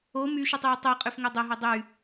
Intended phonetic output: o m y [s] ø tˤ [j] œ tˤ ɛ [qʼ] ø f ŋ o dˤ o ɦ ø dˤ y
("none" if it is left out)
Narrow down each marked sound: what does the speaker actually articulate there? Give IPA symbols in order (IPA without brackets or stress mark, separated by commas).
ʃ, j, qʼ